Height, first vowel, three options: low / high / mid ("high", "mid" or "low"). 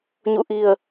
high